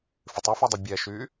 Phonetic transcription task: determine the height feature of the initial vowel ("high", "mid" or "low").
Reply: high